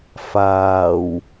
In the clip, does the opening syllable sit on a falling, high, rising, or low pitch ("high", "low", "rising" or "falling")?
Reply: low